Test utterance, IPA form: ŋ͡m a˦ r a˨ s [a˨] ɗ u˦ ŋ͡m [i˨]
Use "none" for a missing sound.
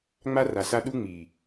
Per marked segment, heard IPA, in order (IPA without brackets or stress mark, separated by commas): a˦, i˨